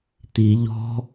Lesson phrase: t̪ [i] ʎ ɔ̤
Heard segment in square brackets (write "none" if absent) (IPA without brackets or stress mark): i